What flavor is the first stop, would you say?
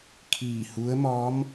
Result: aspirated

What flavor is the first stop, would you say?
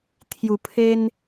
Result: aspirated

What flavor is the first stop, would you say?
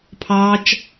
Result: aspirated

